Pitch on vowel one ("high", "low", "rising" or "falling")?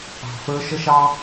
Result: low